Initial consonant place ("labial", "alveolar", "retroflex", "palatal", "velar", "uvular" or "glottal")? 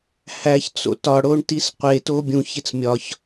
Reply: glottal